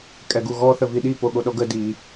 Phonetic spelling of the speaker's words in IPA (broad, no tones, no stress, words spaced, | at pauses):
kʼɛɡuɣɔ θəviɗi poɠoɗɔɡə di